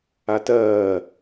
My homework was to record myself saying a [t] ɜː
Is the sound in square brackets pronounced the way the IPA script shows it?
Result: yes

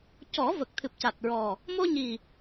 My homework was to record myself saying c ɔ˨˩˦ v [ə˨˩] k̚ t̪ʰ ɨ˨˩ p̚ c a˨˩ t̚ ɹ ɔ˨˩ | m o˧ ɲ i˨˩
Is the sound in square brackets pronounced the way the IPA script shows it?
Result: yes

